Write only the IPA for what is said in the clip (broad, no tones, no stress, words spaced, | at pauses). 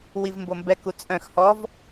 wivmbombɛk ut͡sʼœ̃x hɔv